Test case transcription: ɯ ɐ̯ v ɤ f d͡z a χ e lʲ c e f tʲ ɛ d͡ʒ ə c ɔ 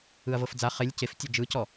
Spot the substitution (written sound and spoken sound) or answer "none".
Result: ə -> ɯ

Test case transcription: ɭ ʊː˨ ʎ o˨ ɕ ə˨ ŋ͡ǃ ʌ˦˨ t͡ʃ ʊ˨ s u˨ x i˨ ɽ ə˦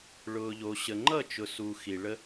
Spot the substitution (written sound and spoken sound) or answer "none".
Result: ɽ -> ɭ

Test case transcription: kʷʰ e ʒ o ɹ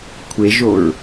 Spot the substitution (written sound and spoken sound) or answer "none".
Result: none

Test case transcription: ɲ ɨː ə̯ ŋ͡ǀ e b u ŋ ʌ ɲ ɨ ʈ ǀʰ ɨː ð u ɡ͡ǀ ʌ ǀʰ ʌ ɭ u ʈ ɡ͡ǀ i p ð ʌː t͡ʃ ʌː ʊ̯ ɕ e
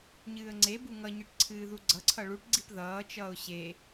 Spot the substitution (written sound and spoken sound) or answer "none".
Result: none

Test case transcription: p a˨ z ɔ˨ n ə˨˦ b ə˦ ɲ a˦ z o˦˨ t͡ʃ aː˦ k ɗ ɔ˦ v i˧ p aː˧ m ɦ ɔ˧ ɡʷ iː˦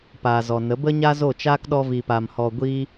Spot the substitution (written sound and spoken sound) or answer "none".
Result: ɦ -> h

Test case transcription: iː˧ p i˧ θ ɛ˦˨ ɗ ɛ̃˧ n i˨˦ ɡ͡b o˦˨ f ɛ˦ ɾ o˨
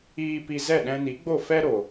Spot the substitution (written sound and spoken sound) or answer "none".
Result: θ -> z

